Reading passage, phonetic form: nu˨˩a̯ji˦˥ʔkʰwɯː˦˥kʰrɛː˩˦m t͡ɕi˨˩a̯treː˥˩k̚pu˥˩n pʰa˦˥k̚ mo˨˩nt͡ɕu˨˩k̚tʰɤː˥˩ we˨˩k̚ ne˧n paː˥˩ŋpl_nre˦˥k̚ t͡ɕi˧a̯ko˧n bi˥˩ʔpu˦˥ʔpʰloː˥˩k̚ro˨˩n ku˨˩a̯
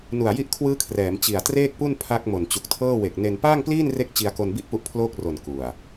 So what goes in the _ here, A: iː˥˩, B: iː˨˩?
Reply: A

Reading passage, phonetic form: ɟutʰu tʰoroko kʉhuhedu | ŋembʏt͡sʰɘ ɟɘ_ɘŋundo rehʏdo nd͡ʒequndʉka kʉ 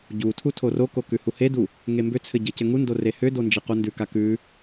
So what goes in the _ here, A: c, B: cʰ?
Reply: A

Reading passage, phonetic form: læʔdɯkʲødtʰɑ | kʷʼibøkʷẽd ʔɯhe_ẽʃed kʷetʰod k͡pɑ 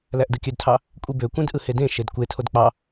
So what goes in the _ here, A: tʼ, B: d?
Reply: B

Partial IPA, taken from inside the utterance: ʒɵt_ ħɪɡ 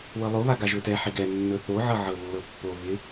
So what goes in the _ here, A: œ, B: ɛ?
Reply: B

